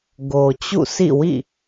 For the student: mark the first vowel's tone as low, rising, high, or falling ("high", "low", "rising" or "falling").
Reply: low